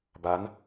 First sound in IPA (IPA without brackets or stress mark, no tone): b